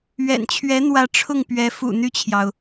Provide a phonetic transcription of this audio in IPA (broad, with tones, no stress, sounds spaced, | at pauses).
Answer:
ɥ ɛ̰˨˩ n t͡ɕʰ ɥ ɛ˧˥ n̪ w ä˧˥ ʈ͡ʂʰ ʊ˥˩ ŋ p ɥ ɛ˧˥ f ṵ˨˩ n̪ y˥˩ t͡ɕʰ j ɑ˩ ʊ̯